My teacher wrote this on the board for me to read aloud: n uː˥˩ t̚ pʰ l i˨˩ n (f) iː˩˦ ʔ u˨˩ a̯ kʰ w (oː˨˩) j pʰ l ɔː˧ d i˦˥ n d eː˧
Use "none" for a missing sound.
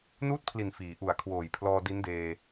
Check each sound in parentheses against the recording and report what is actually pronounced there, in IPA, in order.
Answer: f, oː˨˩

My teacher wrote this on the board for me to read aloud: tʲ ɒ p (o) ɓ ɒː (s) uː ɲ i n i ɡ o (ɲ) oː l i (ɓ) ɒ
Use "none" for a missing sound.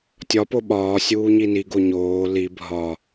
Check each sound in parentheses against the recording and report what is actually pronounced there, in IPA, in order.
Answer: o, sʲ, ɲ, bʱ

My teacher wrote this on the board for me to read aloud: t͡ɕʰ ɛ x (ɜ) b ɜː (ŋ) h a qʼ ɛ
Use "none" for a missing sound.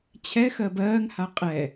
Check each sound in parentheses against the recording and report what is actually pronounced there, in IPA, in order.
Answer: ɜ, ŋ

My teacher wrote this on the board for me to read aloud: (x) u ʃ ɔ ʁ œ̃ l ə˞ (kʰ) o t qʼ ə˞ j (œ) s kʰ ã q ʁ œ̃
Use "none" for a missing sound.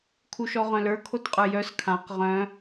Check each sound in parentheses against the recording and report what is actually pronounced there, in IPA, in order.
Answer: kʰ, kʰ, œ

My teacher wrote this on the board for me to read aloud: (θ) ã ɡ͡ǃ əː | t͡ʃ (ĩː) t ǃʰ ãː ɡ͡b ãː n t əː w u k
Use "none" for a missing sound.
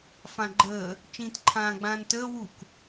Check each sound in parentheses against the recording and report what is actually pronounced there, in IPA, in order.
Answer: f, ĩː

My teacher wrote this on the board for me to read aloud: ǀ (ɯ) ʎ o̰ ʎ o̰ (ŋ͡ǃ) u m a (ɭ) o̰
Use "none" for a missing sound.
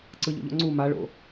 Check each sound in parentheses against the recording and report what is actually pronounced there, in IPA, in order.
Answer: ɯ, ŋ͡ǀ, ɭ

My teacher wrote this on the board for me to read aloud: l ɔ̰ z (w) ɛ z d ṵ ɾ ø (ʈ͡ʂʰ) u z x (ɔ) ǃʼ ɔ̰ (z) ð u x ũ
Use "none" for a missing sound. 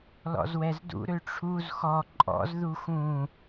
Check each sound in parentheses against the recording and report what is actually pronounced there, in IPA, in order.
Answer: w, ʈ͡ʂʰ, ɔ, z

